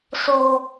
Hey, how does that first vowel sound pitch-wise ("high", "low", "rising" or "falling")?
low